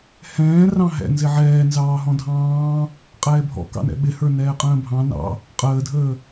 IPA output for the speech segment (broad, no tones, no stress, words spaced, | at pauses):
hɛ̃ː rɑ̃ɦɛ̰ nzɪʕɛːnzɑː ɦɔ̃dʱɑ̃ː | qʼɛːbʱɔ̰kɑ̰nɛ̰ ɓɪhə˞ nɛːqʼə̃ːbʱɑ̃ nɑ̰ | qʼəːdʱəː